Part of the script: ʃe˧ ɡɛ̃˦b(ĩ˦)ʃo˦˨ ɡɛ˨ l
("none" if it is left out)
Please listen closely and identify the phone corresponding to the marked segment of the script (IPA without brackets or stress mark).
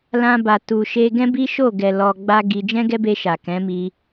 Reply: i˦